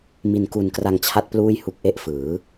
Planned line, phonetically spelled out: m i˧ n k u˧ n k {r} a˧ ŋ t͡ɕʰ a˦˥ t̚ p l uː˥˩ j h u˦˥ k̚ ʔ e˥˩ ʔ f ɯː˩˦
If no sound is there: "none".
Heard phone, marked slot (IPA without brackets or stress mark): r